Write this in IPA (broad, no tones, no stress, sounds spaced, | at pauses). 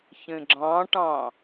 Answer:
ç ẽ ɡ͡ǁ ɑ̃ ʈ ɑ̃